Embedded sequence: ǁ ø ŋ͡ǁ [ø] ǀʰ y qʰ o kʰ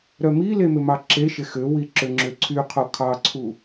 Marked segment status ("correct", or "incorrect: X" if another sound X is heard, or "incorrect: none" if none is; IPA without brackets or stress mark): correct